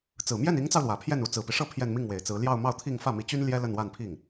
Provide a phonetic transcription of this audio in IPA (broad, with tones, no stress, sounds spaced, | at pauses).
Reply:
t͡s ɹ̩˨˩ m j ɛ˥˩ n i˧˥ ŋ t͡s ɑ˧ ʊ̯ l w ä˨˩ pʰ j ɛ˥˩ n u˧˥ t͡s ɹ̩˨˩ p i˦ ʂ ɤ˥˧ pʰ j ɛ˥˧ n m i˥˩ ŋ w e˨˩ ɪ̯ t͡s ɹ̩˧˥ l j ɑ˥˧ ʊ̯ m ɑ˥˧ ʊ̯ t̪ʰ i˥˧ ŋ f ä˥˩ m i˧˥ t͡ɕ y˥ n l j ɛ˥ l ə˥˧ n w a˥˧ n pʰ i˥˩ ŋ